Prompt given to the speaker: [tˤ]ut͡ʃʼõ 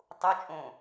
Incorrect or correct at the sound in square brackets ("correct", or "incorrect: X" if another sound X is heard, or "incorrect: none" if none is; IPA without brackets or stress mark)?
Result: correct